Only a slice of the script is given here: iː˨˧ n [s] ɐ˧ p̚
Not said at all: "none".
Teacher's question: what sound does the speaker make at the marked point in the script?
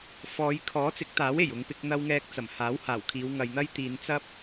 t͡s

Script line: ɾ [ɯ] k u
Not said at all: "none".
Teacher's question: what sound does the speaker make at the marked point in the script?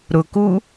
ʊ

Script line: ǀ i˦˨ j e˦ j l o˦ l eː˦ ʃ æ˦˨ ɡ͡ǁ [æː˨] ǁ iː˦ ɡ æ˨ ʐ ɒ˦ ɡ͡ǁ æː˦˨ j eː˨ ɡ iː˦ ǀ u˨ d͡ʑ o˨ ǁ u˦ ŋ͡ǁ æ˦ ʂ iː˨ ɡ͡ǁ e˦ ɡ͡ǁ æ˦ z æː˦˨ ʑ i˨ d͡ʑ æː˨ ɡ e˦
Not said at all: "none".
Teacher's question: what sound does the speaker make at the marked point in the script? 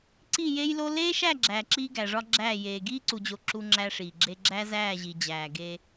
æː˨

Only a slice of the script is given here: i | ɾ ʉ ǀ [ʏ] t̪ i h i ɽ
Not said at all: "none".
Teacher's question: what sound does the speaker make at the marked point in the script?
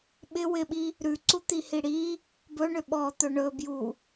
u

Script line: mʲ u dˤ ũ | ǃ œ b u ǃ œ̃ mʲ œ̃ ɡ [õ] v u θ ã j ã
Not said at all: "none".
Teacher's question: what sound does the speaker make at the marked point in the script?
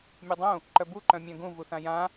ũ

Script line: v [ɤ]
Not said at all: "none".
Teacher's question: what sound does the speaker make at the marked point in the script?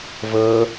ɤ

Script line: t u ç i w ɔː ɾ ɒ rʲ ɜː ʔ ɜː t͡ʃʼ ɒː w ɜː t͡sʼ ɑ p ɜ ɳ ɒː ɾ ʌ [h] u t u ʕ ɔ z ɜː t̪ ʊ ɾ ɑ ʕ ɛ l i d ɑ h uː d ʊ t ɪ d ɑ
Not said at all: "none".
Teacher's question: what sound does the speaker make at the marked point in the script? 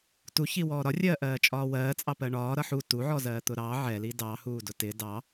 ħ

